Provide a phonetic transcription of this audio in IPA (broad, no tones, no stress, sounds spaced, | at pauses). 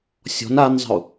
sʲ ɔ̤ n a n zˤ ə̤ u̯